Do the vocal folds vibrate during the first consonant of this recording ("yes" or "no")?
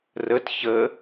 yes